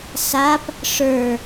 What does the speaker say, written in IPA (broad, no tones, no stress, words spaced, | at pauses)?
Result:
sap | ʂə˞